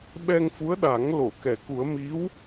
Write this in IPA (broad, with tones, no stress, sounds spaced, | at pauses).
ɓ ɛ˧ ŋ f u˧˥ ə̯ ɗ a˨˩˦ ŋ l o˨˩˨ k ɛ˨˩˨ k u˨˩˦ ə̯ m i˧˥ w